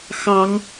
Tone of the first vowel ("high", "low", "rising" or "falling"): rising